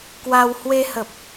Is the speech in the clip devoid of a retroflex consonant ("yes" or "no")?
yes